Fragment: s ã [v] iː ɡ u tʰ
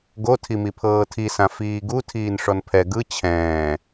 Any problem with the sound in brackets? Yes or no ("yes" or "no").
yes